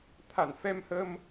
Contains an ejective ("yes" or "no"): no